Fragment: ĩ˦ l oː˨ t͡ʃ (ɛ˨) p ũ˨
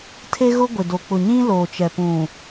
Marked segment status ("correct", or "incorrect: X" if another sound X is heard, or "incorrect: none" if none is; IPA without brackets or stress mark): correct